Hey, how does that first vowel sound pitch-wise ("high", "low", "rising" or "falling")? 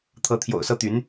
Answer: rising